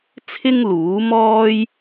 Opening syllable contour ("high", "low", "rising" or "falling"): high